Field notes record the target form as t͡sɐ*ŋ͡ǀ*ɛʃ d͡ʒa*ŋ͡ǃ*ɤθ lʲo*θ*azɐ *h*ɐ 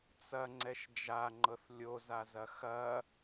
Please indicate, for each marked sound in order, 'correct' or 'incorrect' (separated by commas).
correct, correct, incorrect, incorrect